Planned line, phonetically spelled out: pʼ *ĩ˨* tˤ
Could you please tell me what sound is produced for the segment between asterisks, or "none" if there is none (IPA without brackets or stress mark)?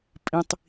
ĩ˨